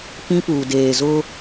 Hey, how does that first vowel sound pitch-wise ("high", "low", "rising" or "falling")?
high